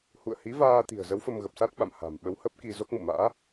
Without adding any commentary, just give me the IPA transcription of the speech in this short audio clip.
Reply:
h ṵ˧˨ ə̯ h i˨˦ v aː˧ t̪ i̤˨˩ ə̯ z ə˨˦ w f ə˧ m ɣ ə˨˩ p̚ s a˦˥ t̚ ɓ a̰˧˨ m h a̤˨˩ m ɓ ə˨˦ w h ə˦˥ p̚ k i˧ z o˦˥ k̚ m ṵ˧˨ m a̰ː˧˥

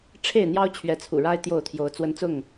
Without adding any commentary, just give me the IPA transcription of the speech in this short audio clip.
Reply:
ʈ͡ʂʰ e˥˨ ɪ̯ n̪ j ɑ˦ ʊ̯ t͡ɕʰ ɥ ɛ˨˦ t͡sʰ ṵ˨˩ ɻ a˦ ɪ̯ t̪ j o˥˨ ʊ̯ t̪ʰ j o˨˦ ʊ̯ t͡s w ə˦ n t͡s ʊ˥˨ ŋ

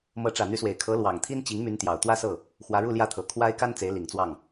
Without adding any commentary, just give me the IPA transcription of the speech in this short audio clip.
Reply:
m ɤ˧˥ ʈ͡ʂ ä˨˩ n̪ y˧˥ s w e˨˩ ɪ̯ kʰ ɤ˧˥ l w ɑ˨˩ ŋ t̪ʰ i˥ n t͡ɕ i˧˥ ŋ m y˧˥ n t̪ j ɑ˨˩ ʊ̯ t̪ w ä˥˧ s ɤ˥˩ | x w ä˧˥ ɻ u˥˧ l j ä˥˩ t̪ʰ ɤ˨˩ kʰ w a˥ ɪ̯ k a˥ n t͡s e˧˥ ɪ̯ l i˨˩ ŋ t͡s w ɑ˥˩ ŋ

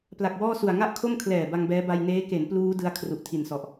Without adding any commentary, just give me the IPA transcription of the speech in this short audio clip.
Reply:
p l a˨˩ k̚ w ɔː˥˩ s u˨˩ a̯ ŋ a˥˩ ʔ kʰ o˥˩ m kʰ l ɛː˨˩ b a˧ ŋ b ɛː˦˥ b a˧ j n eː˦˥ k e˩˦ n p l uː˦˥ d ɯ˧ a̯ kʰ r u˨˩ ʔ tʰ i˨˩ n s ɔ˨˩ ʔ

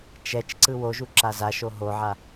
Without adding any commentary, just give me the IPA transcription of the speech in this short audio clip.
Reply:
t͡ʃ ɛ t͡ʃ ǀ ɯ w o ʒ u ǁ a z a ʃ o ɦ o ʕ a

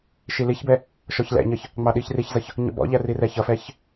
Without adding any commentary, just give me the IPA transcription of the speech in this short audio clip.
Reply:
ʃ i l i ç b ɛ | ʃ ɔ ç l ɛ̰ ɲ ʌ ç | ŋ͡m ɑ ɗ i ç r i ç z ʌ ç | ɲ ɔ̰ b ɔ̰ ʎ æ r i r ɛ ç ʌ f ɛ ç

